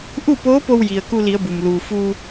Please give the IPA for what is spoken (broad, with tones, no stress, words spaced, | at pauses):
ʔu˥˨poː˧˥po˧wji˩ə̯ ku˧li˩˧ə̯ bu˩m luː˩ fu˧